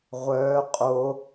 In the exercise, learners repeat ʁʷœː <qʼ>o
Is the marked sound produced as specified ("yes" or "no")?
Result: yes